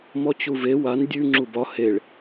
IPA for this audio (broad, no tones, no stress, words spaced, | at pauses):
mɔt͡ɕuve wan dʲʉ ŋ͡ǁubɒ heɭ